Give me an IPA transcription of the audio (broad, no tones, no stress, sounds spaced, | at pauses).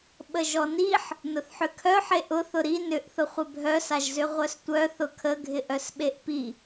ɓ ə ʒ ɔ n i ħ | n ʊ θ ħ ʏ kʰ œ ħ e ʔ ʊ θ ʊ ɾ i n ʏ ʔ θ ʊ χʷ ɪ bʱ œ s a ʒ z ʏ ʁʷ œ s tʷ œ θ ʊ kʰ ə ɡʱ ɪ ʔ œ s ɓ e ʔ p i